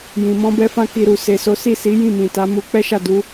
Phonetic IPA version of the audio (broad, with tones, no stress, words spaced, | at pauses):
jĩ˨mɔ̃˧bɛ˧fã˧ ki˧ɾu˨ se˨ so˨˦si˦˨si˨˦ jĩ˦˨mĩ˨ta˨˦mu˧ k͡pɛ˦ʃa˦˨ du˨˦